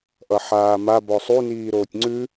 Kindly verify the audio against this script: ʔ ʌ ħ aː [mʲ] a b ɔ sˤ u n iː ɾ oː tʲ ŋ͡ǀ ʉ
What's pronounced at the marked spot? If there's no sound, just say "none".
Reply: m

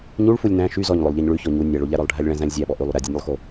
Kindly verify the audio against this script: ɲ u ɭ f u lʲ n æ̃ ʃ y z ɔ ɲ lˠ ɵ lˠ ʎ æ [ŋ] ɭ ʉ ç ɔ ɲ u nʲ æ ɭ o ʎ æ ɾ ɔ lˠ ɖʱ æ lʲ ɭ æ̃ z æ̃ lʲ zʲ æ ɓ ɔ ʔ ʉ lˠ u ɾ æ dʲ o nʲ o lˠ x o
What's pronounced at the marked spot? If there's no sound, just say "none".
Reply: ɲ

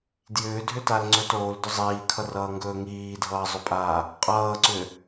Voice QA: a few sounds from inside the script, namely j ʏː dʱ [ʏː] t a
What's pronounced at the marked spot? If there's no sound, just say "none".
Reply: ʏ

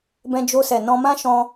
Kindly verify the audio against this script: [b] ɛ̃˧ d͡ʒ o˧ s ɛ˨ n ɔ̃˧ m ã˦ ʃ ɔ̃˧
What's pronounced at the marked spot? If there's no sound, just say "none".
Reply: b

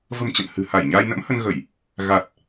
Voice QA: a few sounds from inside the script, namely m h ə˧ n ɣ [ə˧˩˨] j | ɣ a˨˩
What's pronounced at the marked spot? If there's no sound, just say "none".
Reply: ə˧˩˨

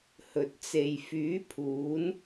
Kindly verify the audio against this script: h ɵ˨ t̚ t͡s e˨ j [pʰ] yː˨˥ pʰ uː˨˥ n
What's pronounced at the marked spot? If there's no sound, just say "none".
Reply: f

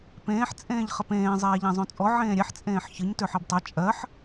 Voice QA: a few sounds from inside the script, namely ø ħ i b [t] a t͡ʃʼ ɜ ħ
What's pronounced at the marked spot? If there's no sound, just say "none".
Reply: tˤ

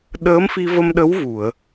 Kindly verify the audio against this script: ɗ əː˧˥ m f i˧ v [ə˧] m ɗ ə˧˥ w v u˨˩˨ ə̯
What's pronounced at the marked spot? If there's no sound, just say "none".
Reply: ə˧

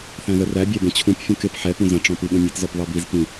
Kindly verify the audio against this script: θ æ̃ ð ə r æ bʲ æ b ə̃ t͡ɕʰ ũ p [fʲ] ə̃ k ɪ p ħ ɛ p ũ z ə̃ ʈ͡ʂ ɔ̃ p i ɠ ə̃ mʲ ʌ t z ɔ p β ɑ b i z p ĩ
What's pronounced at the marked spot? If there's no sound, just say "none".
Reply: fʲ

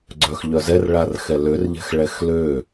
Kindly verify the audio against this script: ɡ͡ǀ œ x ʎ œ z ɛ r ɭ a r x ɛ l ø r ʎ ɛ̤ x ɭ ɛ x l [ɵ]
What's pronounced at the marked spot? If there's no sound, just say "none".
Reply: ø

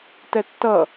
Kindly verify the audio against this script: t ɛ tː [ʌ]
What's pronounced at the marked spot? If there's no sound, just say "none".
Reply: ʌ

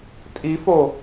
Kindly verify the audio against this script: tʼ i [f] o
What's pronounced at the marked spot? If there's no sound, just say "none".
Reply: f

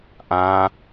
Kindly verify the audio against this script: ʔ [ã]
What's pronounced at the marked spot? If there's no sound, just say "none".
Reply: ã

